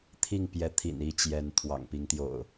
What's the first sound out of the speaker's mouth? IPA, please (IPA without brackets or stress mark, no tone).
t̪ʰ